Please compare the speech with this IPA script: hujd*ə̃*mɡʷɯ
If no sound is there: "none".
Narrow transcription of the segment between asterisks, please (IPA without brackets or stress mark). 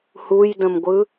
ə̃